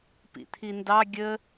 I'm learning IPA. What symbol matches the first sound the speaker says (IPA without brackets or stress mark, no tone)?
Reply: p